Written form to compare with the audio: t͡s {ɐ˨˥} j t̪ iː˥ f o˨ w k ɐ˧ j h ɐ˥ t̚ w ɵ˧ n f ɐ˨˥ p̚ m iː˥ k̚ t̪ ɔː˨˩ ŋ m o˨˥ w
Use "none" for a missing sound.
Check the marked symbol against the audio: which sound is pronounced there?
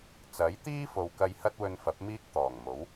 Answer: ɐ˨˥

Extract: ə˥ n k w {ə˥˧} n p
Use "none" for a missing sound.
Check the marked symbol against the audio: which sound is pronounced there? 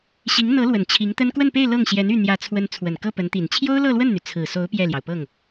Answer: ə˥˧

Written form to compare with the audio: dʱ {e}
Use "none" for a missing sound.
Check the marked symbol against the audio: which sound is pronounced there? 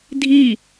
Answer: i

